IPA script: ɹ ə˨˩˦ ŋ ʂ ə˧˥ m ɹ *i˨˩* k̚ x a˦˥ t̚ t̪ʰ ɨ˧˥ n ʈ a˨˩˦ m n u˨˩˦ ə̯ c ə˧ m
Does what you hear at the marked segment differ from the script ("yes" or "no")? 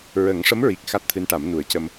no